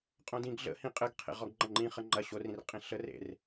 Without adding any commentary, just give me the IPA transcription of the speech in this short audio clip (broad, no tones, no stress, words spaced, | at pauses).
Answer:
qʼõdĩɡ ɮə̰hĩ qʼɘɡ qʰḛʁɔɡŋ͡ǃɐ̃ŋ͡ǃĩ χəŋ͡ǃɐ ɕorĩr qʼĩɬər ḛr